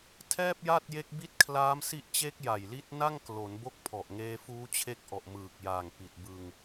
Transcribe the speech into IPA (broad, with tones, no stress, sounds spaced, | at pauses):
tʰ ɛː˥˩ p̚ j a˥˩ t̚ j e˦˥ k̚ b i˦˥ t̚ kʰ l aː˦˥ m s i˦˥ ʔ t͡ɕ e˦˥ k̚ j a˨˩ j l i˦˥ t̚ n a˥˩ ŋ k l o˩˦ n b o˦˥ k̚ pʰ ɔ˨˩ ʔ ŋ eː˧ f uː˦˥ t͡ɕʰ e˦˥ k̚ ʔ ɔ˨˩ ʔ m ɯː˨˩ k̚ j aː˨˩ ŋ p i˨˩ t̚ b ɯ˧ ŋ